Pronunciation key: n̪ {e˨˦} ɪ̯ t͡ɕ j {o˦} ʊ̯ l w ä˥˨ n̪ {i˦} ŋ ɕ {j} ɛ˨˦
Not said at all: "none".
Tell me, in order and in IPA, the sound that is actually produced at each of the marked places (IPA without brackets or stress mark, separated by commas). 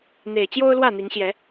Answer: e˨˩, o˦, i˨˦, j